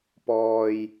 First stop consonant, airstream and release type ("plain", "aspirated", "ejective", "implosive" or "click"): plain